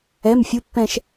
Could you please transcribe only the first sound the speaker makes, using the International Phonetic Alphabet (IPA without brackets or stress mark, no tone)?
ɛ